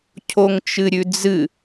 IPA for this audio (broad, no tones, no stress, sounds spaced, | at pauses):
cʰ o ŋ t͡ʃ ɨ ɾʲ ʉ d͡z ɨ